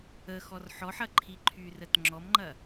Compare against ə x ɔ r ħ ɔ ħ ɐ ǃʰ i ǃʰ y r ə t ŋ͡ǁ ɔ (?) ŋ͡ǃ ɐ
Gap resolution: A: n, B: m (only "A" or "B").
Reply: B